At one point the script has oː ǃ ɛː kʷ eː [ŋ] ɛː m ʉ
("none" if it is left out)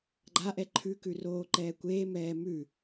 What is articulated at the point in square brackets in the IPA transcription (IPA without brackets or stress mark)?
m